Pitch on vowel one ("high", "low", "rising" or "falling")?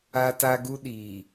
high